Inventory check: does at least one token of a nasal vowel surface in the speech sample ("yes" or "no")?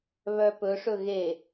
no